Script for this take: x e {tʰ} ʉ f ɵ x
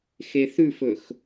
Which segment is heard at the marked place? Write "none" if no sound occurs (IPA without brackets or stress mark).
θ